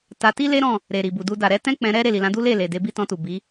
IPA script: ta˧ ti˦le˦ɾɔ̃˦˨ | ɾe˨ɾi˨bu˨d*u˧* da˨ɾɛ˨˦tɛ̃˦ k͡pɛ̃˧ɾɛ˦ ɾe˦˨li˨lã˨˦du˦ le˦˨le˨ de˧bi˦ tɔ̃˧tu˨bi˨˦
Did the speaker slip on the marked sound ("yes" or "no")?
no